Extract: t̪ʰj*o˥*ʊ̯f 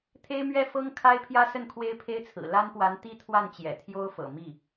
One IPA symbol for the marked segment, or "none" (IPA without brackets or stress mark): o˥